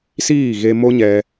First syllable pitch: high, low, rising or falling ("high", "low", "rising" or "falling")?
falling